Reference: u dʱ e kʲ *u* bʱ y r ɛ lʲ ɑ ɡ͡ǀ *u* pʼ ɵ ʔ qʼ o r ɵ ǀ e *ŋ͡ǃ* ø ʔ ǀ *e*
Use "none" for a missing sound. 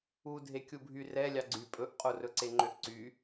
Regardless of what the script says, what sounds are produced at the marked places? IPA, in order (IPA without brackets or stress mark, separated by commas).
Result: u, y, ŋ͡ǃ, y